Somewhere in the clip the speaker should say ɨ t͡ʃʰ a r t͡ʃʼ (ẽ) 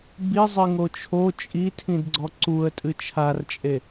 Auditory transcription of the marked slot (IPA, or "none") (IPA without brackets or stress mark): e